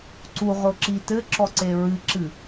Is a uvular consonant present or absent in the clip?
present